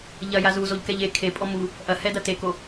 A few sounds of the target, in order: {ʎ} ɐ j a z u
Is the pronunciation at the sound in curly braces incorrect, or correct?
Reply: correct